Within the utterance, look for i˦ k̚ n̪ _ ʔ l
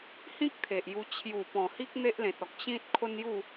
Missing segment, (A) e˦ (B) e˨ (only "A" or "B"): A